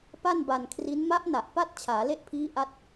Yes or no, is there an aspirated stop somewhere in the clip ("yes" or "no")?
yes